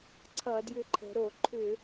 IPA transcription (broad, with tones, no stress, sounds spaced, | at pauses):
ǀʰ ʌ˧˩˧ d j ʏ˧ ǃʰ ə̤˩˧ ɾ o˧˩˧ ǃʰ ʏ˧˩˧